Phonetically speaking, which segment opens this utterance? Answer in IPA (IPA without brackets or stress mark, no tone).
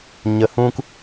ɲ